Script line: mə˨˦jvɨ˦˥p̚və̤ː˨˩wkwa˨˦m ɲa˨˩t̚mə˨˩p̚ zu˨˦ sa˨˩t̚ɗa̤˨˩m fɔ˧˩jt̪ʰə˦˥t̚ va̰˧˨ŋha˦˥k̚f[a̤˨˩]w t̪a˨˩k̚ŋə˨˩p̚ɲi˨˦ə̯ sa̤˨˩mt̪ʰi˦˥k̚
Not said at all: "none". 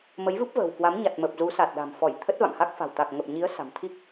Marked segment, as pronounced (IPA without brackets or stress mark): a̤˨˩